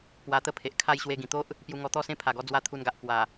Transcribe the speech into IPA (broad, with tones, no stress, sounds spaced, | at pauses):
p w a˧ t̪ ə˥˧ pʰ e˨ ʔ kʰ a˥˧ j ɕ w e˧ ɡ ĩ˨˩ t̪ o˦ ʔ | p j u˧ ŋ ɔ˧ t̪ ɔ˥˧ s ẽ˦ pʰ a˨˩ ɡ ɔ˧ d͡z w a˧ t̪ʰ u˧ n ɡ a˨ ʔ k w a˨˩